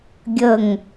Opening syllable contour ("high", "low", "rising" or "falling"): falling